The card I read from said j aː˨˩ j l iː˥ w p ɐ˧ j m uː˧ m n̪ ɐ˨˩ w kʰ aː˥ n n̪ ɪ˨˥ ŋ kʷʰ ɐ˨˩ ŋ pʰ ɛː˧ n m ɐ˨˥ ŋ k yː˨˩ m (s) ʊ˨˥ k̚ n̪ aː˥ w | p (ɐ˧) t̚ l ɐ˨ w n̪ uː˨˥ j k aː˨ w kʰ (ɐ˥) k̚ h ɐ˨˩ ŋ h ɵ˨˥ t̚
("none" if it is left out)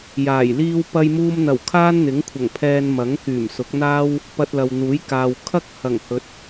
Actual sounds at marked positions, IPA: s, ɐ˧, ɐ˥

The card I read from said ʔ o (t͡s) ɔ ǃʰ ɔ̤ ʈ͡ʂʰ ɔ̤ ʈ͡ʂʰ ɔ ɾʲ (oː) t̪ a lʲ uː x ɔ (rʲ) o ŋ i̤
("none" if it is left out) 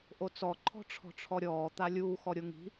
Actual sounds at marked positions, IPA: t͡s, ɔː, ɾʲ

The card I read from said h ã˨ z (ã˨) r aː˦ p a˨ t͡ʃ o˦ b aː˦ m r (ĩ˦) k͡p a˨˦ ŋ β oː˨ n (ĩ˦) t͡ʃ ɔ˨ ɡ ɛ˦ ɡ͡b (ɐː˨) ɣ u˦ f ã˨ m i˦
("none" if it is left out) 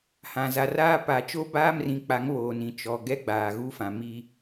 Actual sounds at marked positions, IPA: a˨, ĩ˨, ĩ˨, aː˨

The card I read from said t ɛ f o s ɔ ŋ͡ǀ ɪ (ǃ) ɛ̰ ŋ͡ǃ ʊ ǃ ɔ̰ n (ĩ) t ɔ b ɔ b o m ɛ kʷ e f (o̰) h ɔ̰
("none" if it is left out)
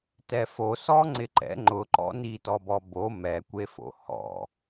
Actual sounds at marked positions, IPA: ǃ, i, o̰

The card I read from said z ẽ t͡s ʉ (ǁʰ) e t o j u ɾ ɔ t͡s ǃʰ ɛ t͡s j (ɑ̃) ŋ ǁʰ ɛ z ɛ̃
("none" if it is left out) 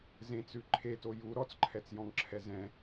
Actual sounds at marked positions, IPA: ǃʰ, ɔ̃

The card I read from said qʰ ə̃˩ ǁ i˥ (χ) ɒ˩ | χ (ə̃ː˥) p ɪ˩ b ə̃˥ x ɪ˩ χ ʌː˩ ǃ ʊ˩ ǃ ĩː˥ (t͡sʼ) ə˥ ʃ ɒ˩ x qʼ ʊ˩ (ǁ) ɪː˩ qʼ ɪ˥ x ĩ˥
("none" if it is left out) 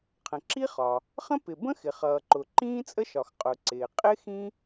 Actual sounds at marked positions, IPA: χ, ə̃˥, t͡sʼ, ǀ

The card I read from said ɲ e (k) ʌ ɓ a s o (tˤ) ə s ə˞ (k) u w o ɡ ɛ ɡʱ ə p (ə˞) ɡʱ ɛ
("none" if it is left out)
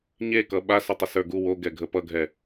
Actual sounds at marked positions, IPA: k, tˤ, ɡ, ʌ

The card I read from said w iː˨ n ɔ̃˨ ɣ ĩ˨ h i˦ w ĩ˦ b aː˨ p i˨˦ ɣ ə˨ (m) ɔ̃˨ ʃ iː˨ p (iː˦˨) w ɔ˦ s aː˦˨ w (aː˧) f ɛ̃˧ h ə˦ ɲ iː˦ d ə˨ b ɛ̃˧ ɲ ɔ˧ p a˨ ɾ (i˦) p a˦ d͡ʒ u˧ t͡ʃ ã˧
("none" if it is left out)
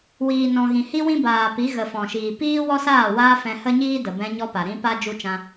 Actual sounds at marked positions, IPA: f, iː˦, aː˦, ĩ˦

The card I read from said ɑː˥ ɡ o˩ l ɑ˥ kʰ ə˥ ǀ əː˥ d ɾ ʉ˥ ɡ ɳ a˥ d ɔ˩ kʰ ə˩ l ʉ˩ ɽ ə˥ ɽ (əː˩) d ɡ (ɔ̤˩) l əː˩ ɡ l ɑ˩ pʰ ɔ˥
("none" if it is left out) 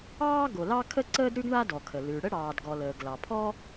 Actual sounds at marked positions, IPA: ɑː˩, ɔ˩

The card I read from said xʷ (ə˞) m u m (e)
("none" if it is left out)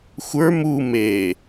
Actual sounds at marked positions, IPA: ə˞, e

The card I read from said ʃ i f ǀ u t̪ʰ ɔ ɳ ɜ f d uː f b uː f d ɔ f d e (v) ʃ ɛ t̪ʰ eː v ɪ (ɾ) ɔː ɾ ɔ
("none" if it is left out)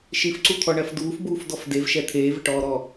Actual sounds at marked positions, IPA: v, ʈ

